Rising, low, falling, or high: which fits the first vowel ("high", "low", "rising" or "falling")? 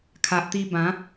low